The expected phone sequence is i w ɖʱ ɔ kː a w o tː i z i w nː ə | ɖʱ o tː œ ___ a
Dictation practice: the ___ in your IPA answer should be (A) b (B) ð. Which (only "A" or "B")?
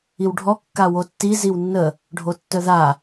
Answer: B